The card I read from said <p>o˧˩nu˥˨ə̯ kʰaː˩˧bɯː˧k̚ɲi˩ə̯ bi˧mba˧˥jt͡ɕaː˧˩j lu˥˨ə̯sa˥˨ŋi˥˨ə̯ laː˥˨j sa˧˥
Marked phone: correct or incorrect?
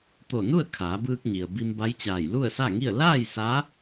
incorrect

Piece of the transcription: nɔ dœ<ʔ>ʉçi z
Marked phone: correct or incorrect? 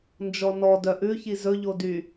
correct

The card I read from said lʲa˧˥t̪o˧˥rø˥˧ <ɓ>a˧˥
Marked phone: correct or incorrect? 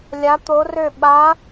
correct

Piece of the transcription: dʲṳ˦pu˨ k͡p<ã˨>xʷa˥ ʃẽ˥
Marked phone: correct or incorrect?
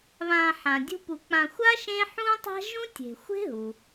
correct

